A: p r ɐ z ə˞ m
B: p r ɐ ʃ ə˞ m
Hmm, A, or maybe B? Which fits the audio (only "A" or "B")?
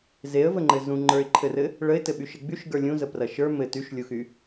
B